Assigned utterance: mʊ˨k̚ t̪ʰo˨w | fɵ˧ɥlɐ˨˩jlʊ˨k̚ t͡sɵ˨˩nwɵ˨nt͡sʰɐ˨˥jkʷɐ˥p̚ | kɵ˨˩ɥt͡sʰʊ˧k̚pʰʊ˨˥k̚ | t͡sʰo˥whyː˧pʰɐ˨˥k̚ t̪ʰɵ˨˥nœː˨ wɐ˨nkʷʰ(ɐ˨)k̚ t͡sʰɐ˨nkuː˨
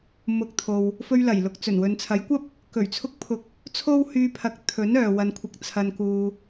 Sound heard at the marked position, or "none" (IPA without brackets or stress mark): ɐ˨